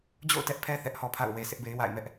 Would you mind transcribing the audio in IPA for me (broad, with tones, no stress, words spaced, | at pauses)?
d͡ʑo̰˦˨ʊ̯tɛ˦ʔpʰɛ˦ θɛ˦ʔhɔ˦pʰa̰˦˨ʊ̯ we˨sʰɪ˦ʔbe˦ɪ̯ wa̰˦˨ɪ̯mɛ˦ʔ